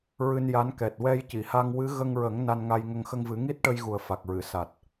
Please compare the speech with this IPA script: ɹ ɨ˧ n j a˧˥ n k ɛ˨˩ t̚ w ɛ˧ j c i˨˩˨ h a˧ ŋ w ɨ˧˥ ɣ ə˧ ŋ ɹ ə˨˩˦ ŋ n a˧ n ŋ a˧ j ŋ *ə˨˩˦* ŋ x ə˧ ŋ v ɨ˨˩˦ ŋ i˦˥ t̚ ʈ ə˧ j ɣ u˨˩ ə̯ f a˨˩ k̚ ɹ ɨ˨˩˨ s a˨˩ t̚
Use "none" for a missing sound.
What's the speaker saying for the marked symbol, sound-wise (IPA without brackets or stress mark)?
ə˧